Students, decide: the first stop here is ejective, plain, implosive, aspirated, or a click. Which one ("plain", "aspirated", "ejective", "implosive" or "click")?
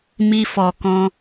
plain